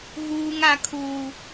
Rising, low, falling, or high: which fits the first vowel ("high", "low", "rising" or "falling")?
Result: high